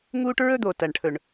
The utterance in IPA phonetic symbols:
ŋ uː˦ ʈ ɹ ɵ˦ d̪ o˨˩ t ɐ˨˩ ɳ ʈʰ ɵ˨˩ ɳ

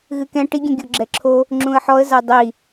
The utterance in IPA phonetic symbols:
ɣ ɨ k ɛ̃ ʈ i ɡʲ ɛ̃ ɡʲ o ɡ͡ǁ ɛ ǁʰ o | ŋ͡ǁ ũ ə̯ ħ ɔ ə̯ z a dˤ i

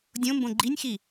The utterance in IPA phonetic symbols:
dʲ õ m b õ ɡ͡ǃ i nʲ x i

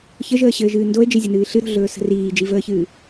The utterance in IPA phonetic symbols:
ç ə ʒ əː ɕ ɘː ʒ ɨː n d o e̯ d͡ʒ e zʲ ə n ɨː ɬ ɨ ɾ o̤ ɮ ɵː s ə̤ r iː d͡ʒ i v əː ç ɨː

